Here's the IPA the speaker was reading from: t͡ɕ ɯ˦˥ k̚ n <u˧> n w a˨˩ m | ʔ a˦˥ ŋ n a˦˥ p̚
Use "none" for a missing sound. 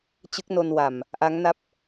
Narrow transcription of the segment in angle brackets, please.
o˧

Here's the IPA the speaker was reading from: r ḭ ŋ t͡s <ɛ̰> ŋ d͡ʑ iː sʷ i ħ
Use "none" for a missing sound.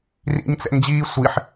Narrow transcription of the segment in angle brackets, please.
ɛ̰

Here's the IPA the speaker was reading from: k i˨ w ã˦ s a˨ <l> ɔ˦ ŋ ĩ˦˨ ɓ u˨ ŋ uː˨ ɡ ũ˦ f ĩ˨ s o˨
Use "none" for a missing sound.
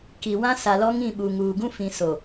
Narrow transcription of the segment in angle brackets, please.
l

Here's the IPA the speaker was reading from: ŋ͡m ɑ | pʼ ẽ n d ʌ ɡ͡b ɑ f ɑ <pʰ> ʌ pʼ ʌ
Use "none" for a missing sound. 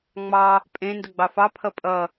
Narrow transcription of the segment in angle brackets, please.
pʰ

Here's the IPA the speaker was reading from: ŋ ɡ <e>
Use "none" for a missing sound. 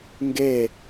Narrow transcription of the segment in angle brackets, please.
e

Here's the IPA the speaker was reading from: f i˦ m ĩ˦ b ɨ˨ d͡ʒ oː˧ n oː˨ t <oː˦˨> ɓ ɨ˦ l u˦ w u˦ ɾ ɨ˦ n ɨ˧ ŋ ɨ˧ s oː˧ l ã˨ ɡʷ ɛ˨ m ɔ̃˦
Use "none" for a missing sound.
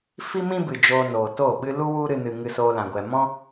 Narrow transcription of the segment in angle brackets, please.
oː˦˨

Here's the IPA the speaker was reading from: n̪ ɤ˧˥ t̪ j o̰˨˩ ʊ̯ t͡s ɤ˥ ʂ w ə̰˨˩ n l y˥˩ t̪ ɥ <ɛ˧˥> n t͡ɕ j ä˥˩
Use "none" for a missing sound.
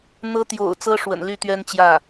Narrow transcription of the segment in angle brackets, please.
ɛ˥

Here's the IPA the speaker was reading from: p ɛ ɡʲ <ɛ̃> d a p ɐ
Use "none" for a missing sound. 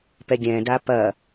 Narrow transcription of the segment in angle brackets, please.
ɛ̃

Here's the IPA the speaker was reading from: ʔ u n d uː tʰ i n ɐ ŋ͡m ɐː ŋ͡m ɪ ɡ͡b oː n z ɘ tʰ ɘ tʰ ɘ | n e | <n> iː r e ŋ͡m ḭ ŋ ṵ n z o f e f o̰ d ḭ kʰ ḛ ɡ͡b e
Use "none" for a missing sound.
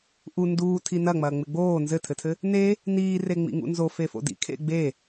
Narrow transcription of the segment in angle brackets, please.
n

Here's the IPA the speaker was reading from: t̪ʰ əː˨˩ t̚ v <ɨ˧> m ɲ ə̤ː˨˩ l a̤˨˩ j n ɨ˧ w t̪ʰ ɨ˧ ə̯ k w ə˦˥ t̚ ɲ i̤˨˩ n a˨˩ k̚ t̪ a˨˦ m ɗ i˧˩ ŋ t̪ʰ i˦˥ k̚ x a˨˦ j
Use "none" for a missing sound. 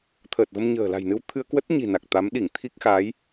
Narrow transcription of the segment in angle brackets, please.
ə˧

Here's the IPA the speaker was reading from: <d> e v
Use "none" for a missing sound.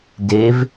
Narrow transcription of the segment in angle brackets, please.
d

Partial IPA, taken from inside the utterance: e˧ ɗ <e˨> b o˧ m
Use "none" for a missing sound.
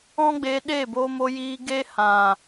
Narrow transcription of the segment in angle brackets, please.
e˦˨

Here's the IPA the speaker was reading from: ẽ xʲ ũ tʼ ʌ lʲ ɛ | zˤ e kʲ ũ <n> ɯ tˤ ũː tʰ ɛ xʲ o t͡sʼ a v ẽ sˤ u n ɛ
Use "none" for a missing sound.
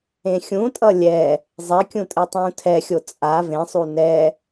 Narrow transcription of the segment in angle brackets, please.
tʼ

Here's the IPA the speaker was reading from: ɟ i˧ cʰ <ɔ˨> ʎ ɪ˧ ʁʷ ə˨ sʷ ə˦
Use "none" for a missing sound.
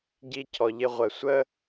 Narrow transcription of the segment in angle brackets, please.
ɔ˨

